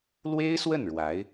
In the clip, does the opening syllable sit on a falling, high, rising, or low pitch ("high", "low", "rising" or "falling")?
high